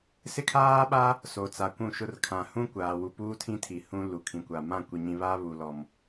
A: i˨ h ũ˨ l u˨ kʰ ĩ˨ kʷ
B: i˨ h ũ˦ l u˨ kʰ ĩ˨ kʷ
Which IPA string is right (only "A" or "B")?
B